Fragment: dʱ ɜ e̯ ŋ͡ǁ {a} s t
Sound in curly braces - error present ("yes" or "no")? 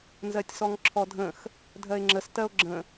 yes